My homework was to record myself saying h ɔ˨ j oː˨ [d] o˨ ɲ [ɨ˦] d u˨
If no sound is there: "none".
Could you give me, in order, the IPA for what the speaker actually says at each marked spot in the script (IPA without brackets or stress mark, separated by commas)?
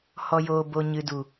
b, ɨ˨